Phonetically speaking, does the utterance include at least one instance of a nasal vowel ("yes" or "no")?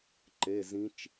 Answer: yes